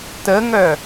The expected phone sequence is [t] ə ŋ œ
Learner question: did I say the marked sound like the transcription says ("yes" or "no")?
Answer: yes